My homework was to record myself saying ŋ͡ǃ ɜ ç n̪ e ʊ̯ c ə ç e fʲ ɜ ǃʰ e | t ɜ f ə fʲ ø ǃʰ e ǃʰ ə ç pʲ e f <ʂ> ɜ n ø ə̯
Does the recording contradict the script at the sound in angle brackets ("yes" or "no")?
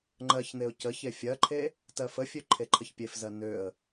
yes